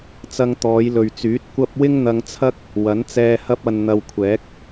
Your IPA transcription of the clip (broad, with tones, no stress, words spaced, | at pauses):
t͡sɐ˧ŋt̪ɔː˨˧jlɵ˨ɥt͡syː˨˥t̚ kʷɐ˥p̚ wɪ˥ŋn̪ɐ˧ŋt͡sʰɐ˥k̚ | wɐ˨˥nt͡sɛː˧hɐ˥p̚ɐ˧n n̪ɐ˧wkʷʰɛː˨˥k̚